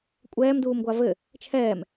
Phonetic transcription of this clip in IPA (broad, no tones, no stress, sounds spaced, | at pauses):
kʷʼ ɛː m d uː m ɡʷ a v ɘ | t͡ʃʰ ɛː m